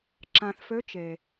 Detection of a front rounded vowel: present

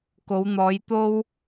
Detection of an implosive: absent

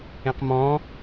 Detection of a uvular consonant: present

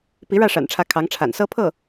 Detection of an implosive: absent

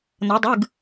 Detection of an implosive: absent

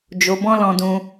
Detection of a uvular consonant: absent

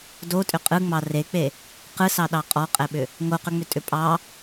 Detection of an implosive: present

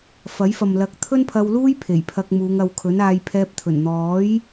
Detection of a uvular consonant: absent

